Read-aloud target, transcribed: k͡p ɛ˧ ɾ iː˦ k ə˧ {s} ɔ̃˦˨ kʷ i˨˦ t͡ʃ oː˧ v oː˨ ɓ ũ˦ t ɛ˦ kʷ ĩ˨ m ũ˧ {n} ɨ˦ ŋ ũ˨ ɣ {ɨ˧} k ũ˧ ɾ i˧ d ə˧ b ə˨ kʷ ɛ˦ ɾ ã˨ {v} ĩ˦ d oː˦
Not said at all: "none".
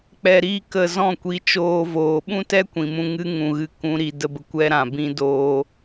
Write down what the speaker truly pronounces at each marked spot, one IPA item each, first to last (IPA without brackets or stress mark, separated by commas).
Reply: z, ŋ, ɨ˧, b